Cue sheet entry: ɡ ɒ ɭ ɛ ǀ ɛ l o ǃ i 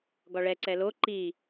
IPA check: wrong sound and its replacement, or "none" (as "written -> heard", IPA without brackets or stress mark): none